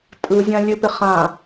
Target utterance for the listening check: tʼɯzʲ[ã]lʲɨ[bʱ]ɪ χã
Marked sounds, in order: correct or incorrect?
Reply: correct, incorrect

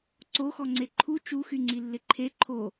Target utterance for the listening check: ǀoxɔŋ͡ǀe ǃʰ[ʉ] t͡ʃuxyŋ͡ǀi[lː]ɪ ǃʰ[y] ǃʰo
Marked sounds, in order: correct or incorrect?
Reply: incorrect, correct, incorrect

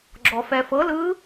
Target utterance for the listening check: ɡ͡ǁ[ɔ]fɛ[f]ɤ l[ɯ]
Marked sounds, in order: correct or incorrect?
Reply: correct, correct, correct

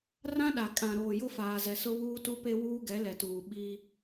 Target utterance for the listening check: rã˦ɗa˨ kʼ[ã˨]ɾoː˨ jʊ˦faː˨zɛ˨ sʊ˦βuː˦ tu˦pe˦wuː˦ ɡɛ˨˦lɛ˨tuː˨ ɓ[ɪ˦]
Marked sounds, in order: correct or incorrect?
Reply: correct, incorrect

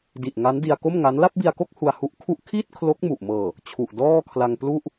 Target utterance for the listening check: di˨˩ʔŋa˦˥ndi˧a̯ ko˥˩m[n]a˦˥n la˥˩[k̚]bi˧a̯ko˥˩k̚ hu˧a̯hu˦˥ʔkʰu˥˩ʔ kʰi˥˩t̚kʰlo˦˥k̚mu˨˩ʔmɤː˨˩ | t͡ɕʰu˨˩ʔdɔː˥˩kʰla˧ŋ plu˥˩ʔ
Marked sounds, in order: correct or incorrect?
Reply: incorrect, incorrect

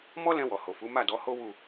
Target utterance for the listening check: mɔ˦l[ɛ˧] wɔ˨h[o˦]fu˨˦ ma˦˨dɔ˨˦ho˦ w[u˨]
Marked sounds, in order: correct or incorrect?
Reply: incorrect, incorrect, incorrect

